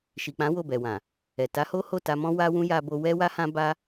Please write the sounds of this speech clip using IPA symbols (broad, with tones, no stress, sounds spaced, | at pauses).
ʃ i˨ k͡p ã˨˦ w o˦˨ b ɛ˨ w ã˨ | ɛ˨ t a˨˦ h o˦ h o˦˨ t a˧ m ɔ̃˦ w a˦ w ũ˦ j a˧ b o˧ w ɛ˦ w a˦ h ã˦ b a˦